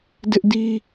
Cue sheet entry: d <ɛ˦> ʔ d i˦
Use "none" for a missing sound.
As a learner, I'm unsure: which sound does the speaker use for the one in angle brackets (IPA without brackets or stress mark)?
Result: ɪ˦